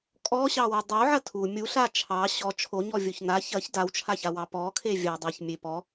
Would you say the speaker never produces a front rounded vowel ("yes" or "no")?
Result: yes